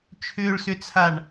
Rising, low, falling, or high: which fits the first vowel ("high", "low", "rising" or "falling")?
low